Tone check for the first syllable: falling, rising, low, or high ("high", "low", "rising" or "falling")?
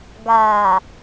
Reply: low